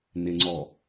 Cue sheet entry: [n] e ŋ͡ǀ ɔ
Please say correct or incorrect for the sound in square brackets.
correct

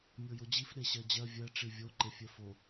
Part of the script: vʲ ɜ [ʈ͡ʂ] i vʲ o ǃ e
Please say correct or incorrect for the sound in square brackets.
correct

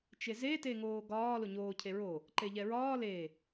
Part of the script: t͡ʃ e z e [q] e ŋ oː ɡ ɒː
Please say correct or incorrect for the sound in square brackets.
incorrect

